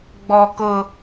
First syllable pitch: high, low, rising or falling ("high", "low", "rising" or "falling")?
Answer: high